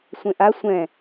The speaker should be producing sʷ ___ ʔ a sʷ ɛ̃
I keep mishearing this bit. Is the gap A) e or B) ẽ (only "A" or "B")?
B